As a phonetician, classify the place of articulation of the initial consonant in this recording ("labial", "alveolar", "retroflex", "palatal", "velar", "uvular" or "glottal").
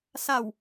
alveolar